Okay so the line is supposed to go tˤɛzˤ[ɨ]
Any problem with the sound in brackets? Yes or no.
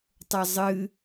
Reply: no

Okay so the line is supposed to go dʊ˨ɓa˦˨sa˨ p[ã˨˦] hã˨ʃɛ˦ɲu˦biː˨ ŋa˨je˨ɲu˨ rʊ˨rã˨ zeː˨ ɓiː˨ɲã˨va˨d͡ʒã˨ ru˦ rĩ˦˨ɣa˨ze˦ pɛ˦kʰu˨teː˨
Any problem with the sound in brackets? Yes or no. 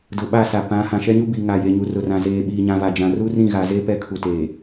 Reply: no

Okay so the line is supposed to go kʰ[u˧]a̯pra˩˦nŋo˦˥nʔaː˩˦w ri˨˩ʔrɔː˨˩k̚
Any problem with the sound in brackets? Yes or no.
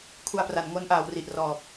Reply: no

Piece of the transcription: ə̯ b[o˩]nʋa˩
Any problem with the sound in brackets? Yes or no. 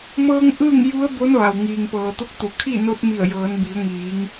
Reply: yes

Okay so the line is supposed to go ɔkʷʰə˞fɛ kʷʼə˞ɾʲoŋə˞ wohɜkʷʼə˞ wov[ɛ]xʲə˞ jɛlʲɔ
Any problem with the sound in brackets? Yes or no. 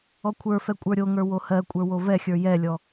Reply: no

